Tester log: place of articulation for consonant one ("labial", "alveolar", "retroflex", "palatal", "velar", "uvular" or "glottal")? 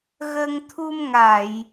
velar